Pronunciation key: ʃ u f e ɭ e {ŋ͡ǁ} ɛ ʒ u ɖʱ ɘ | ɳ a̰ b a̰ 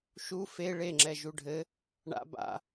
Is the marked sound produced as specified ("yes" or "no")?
yes